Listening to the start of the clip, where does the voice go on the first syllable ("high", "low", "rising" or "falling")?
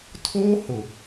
high